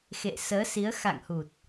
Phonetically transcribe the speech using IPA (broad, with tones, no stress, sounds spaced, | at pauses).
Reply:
x ḛ˧˨ s əː˨˦ s i˨˦ ə̯ x a̰˧˨ ŋ h u˨˩ t̚